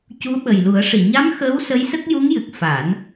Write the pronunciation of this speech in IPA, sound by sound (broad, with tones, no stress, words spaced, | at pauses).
cu˧˥ɓə˨˩jlu˨˩˦ə̯ ʂi˨˩˨ɲa˧˥m xəː˧˥w sə˧˥jsə˦˥k̚ ju˧˥ŋjɨ˨˩k̚ fa˨˩˦n